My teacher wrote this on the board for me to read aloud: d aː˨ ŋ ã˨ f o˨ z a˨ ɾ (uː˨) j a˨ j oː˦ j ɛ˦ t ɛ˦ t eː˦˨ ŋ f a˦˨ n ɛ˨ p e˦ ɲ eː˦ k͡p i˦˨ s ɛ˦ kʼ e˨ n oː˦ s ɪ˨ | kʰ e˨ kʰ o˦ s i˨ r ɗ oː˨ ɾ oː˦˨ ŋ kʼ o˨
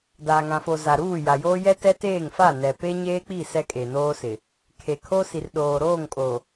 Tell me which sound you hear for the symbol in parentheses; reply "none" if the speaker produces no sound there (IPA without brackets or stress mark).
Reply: uː˦˨